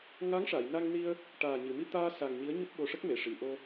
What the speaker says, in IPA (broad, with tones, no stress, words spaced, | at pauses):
ŋa˧˥ŋʂa˨˩˨jna˧ŋni˧ə̯ | ʈaː˨˩ɲɨ˨˩˨ mi˧t̪aː˧ sa˨˩ŋ ɲi˧˥ə̯ɲu˦˥p̚ɓo˧ʂə˦˥k̚ me˨˩˨ʂi˨˩˨ʔo˧